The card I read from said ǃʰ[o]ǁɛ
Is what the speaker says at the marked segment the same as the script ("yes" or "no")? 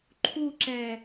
no